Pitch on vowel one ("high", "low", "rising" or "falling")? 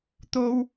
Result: high